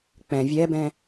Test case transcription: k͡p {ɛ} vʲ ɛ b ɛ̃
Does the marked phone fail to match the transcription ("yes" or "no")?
yes